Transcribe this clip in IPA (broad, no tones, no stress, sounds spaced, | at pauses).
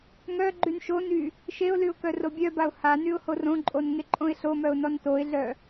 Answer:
ŋ œ ɡ͡ǃ y n ʃ o n y | ʃ e ʊ̯ l y ʊ̯ k œ r o bʲ œ b a ʊ̯ h a n y ʊ̯ h o r õ ǃʼ o n ŋ e ǃʼ õ ɪ̯ ɬ o m œ ʊ̯ n ɔ n t o ɪ̯ ɮ œ